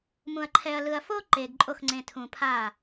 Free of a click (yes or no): no